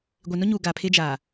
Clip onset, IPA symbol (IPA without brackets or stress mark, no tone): ɡʷ